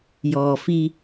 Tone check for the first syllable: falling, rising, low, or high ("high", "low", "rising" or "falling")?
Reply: low